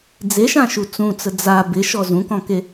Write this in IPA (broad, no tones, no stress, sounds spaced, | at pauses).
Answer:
d͡z e ʃ ã ʃ u t͡s ũ t͡s ə d͡z a b ɪ ʃ ɔ z ũ k ɔ̃ k e